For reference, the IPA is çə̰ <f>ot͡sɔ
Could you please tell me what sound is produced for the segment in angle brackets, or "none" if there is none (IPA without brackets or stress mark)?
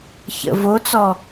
v